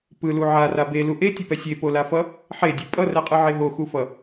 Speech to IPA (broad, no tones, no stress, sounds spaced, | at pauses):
p ɯ l u ʕ a r a b e l u ʔ e tʲ ɯ p ɛ sʲ e p o l a f ʌ | ħ e dʲ u pʼ ʌ r ɛ qʼ ɯ ʕ e ɦ o x u f ʌ